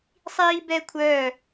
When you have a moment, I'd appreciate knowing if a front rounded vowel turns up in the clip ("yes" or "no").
yes